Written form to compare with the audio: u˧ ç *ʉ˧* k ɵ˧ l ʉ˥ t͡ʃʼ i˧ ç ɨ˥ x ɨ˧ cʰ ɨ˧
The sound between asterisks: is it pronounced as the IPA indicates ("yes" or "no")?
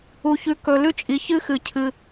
yes